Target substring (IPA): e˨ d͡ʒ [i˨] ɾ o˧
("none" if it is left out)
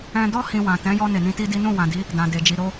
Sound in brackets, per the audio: i˨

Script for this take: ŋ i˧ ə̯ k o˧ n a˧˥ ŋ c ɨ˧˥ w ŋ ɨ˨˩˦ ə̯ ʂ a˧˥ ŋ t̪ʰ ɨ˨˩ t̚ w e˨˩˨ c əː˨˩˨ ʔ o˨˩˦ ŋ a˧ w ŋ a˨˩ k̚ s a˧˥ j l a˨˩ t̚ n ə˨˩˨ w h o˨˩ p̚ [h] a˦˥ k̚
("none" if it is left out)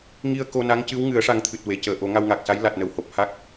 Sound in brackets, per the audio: h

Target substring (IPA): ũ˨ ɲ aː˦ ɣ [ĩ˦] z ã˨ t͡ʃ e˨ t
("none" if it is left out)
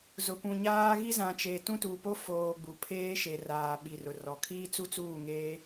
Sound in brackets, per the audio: i˦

